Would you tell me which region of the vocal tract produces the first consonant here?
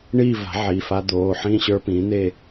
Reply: retroflex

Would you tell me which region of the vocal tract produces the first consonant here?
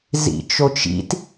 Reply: tongue tip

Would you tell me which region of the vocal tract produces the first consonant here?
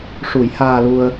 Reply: retroflex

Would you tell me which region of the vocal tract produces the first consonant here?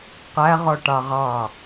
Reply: uvula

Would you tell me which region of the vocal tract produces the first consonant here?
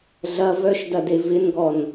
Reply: tongue tip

